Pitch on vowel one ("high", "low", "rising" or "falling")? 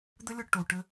high